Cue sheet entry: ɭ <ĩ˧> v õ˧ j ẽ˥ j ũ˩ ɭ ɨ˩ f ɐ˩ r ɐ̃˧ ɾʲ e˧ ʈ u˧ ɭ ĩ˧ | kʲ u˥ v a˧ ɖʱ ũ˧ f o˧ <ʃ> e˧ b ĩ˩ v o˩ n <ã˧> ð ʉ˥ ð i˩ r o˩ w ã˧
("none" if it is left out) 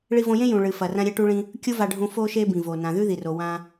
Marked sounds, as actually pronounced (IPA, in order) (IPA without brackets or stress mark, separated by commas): i˧, ʃ, ã˩